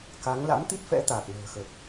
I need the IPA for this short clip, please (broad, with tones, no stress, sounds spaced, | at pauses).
k a˨˦ ŋ l a̰˧˥ m t̪ i˦˥ t̚ f ɛ̰˧˥ t̪ aː˨˩ k̚ n ə̤ː˨˩ x ə˨˩ t̚